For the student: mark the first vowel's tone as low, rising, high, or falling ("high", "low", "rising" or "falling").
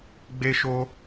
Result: high